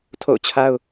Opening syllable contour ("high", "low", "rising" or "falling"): falling